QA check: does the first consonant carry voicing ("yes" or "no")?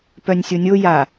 no